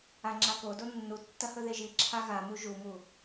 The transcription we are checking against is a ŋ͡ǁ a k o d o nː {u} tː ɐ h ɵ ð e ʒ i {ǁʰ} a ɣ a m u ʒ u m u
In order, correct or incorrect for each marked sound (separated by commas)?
correct, correct